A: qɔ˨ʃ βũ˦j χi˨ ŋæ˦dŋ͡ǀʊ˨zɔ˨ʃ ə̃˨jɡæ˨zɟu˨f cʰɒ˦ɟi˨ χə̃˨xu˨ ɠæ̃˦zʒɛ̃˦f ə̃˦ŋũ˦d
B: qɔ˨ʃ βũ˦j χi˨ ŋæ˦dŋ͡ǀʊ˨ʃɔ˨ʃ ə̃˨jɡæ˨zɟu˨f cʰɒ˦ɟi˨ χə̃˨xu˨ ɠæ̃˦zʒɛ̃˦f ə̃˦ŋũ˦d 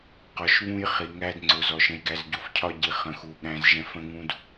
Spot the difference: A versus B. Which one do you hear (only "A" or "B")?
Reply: A